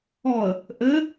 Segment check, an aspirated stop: absent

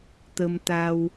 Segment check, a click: absent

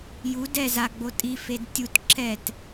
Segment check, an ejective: present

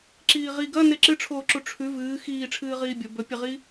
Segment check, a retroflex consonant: present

